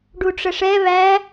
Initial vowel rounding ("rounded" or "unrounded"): rounded